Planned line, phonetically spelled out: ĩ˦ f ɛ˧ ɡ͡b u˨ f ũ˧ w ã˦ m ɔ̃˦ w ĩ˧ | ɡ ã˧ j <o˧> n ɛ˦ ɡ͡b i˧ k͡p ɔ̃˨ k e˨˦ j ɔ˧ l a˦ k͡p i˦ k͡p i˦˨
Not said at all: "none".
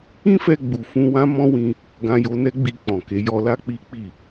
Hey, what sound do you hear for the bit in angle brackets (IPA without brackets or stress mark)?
o˧